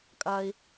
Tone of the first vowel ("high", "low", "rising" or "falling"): high